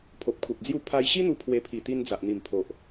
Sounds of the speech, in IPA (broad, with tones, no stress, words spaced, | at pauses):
pʰo˨p̚kʰu˨p̚d͡zju˦ pʰa˧jɕi˦n̪u˧ pʰwe˧ pʰi˨˩t̪i˧n d͡za˨ʔ n̪i˨˩mpʰo˨ʔ